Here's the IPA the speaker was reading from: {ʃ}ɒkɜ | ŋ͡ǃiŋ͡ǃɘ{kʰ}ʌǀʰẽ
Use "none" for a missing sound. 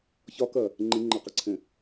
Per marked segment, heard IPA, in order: ç, q

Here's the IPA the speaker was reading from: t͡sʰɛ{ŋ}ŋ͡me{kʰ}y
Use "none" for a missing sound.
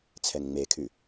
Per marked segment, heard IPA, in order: ŋ, kʰ

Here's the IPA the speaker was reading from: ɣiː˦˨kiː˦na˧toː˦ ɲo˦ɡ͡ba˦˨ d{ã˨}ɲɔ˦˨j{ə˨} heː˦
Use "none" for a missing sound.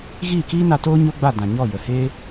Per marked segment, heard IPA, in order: ã˨, ə˨

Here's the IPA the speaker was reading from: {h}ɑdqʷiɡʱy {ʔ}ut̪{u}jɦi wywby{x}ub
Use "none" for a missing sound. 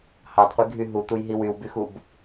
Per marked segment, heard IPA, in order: h, ɦ, u, x

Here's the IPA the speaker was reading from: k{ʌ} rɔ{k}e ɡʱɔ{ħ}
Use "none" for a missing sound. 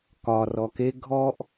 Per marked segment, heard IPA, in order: ɒ, k, ʔ

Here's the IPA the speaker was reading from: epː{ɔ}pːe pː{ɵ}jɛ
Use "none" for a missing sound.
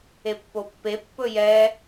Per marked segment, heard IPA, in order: o, ɵ

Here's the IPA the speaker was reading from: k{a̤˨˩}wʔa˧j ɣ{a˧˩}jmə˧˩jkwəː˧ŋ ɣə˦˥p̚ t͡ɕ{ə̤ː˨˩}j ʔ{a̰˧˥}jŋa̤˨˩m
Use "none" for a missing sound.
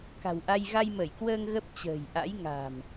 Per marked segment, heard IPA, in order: a̤˨˩, a˧, ə̤ː˨˩, a̰˧˥

